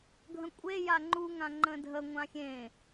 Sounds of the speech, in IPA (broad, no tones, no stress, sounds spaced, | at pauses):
ɡʱ ə̃ kʷʼ e j a ŋ͡ǃ u ŋ ã ŋ͡ǃ ə̃ dʱ ə ŋʷ ã xʲ ẽ